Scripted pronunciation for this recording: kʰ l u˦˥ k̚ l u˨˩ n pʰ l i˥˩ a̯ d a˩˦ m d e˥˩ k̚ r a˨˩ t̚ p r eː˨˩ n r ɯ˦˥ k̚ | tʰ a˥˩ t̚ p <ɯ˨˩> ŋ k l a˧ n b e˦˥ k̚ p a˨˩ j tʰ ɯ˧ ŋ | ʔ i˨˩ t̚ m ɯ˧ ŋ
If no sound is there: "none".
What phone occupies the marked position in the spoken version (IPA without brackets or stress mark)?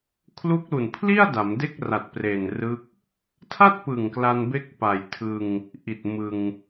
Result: ɯ˨˩